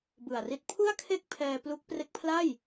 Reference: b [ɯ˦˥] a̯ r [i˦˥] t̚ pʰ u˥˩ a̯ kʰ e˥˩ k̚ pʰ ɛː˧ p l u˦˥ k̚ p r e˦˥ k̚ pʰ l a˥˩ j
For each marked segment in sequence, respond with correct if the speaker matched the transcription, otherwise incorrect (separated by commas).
incorrect, correct